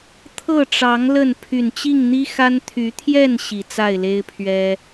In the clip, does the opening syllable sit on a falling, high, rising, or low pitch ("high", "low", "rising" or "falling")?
falling